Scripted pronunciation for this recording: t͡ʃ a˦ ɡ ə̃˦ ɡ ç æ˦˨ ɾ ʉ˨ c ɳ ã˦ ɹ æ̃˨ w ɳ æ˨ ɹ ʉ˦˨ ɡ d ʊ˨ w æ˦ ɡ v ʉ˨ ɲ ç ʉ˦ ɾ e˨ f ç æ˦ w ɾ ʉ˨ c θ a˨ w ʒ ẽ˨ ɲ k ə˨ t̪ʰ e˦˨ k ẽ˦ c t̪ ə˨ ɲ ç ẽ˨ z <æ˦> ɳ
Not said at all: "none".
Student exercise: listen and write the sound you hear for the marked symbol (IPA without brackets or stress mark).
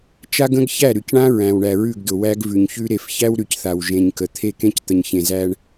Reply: æ˦